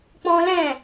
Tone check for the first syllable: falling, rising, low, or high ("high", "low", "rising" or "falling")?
high